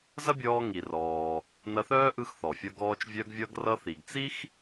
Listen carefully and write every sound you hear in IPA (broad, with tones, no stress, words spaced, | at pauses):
zɐ˥bʲɔː˧ŋi˩rɔː˩ | nɐ˧θœː˥ʔɯ˧x θɔ˩fʲʌ˧ɡɔː˧t͡ʃ vʲœ˧ɡvʲʌ˧ɡrʌ˧ θi˩ɡt͡si˥x